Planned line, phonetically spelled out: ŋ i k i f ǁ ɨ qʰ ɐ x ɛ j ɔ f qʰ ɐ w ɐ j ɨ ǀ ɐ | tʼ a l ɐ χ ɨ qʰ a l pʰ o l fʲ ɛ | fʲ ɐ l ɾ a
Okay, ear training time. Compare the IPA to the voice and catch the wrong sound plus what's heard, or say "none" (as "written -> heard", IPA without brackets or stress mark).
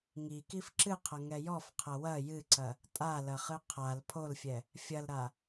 x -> ŋ